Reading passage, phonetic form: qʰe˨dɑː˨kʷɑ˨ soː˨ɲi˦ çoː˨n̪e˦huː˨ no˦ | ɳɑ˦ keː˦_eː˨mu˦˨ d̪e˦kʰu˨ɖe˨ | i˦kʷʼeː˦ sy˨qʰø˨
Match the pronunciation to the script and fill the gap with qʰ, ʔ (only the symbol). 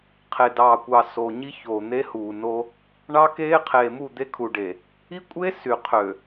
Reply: qʰ